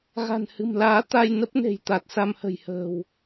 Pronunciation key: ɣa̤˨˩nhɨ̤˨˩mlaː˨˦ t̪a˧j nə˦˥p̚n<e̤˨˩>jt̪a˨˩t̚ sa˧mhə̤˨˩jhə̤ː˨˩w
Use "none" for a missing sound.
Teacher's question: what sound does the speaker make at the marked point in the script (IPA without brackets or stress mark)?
e̤˨˩